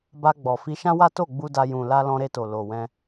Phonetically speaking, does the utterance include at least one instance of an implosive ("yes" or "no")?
no